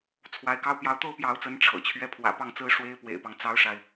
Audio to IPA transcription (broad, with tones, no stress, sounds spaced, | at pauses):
t͡sʰ w a˧˥ ɪ̯ k ɑ˥ ʊ̯ p j ɑ˧˥ ʊ̯ t̪ o˥ ʊ̯ p j ɑ˧˥ ʊ̯ t͡s ə˧˥ n ʈ͡ʂʰ ɤ̰˨˩ t͡ɕʰ ɥ ɛ˥˩ pʰ w ä̰˨˩ p ɑ˥˩ ŋ t͡s ɹ̩˥ ʂ w e˥ ɪ̯ p w ḛ˨˩ ɪ̯ p ɑ˦ ŋ t͡s ɑ˥ ʊ̯ ʂ a˨ ɪ̯